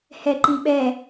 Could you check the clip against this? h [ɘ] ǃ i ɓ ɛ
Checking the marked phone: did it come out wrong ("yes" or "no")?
yes